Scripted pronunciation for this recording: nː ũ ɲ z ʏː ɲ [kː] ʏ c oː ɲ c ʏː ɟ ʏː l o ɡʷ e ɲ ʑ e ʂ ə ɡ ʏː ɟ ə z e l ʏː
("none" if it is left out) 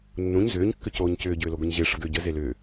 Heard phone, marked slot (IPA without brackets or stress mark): kː